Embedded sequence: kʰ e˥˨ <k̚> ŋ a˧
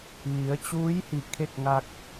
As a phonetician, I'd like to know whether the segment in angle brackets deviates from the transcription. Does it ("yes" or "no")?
no